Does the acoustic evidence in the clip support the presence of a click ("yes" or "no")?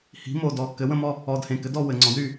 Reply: yes